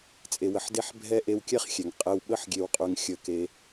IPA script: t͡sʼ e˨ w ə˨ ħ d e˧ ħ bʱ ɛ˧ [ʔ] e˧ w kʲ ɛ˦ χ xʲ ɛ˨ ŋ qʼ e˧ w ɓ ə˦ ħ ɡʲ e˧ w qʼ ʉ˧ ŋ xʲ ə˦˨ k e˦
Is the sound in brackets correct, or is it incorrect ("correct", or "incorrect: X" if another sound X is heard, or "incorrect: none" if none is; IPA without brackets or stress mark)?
correct